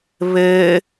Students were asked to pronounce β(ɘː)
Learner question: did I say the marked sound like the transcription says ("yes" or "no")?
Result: yes